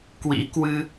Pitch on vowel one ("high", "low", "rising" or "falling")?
rising